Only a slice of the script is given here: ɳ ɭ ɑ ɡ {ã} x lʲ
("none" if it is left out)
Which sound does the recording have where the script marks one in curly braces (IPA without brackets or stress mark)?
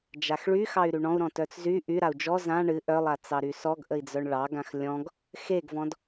ã